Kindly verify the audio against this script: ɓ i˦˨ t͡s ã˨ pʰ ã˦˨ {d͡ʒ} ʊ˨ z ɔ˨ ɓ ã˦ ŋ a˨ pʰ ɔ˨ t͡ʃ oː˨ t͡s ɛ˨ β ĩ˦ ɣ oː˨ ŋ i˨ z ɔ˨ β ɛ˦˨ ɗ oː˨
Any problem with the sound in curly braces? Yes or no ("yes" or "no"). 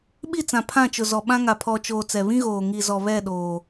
yes